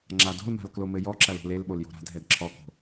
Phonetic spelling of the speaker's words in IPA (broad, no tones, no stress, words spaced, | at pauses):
ŋ͡ǁado̤lma̤l klomɘjɔǁɐl o̤lelɓol jo̤ɾa̤dʱɛd ǁʰɔko̤